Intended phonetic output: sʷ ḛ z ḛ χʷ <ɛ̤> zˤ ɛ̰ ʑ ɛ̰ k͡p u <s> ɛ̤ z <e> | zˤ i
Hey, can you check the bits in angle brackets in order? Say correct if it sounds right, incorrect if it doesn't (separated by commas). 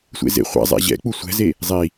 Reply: incorrect, incorrect, correct